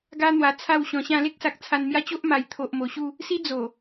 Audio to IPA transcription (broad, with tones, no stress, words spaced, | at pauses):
ɡa˦n̪wa˧ t͡sʰa˥˧w ɕɔ̃˧ɕã˥˧ le˦k̚sa˨k̚ t͡sʰa˧nmja˦t͡ɕo˦ʔ ma˨˩jt̪ʰo˨ʔmo˨˩ɕu˥˧ | si˦d͡zo˨˩